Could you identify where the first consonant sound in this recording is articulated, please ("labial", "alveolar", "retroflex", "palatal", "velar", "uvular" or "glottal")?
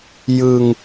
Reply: palatal